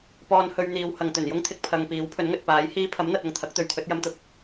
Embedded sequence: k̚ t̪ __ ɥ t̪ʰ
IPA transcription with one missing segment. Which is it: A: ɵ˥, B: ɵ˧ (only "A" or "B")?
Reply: B